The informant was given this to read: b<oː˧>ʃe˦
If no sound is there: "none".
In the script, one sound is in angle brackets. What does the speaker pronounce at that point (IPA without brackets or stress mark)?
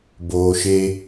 oː˧